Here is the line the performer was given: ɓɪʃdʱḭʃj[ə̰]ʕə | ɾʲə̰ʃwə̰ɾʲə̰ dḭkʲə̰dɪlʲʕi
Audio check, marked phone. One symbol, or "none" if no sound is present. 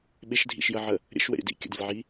ə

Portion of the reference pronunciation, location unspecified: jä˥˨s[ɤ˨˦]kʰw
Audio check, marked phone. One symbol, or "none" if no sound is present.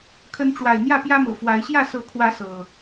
ɤ˨˦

